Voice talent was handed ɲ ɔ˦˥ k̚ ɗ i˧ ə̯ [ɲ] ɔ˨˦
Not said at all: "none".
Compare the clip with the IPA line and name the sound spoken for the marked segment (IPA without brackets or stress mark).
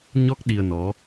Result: n